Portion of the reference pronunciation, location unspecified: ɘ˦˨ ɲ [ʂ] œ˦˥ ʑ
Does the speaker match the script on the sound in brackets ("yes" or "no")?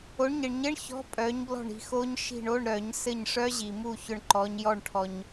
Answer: yes